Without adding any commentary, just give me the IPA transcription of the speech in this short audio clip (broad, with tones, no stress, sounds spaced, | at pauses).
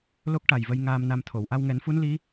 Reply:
l o˦˥ k̚ ʈ a˨˩ j v ə˧ j ŋ aː˧ m n a˧ m t̪ʰ o˨˩˨ w ʔ a˧ w ŋ ɛ˨˩˦ n f u˧˥ n l i˧˥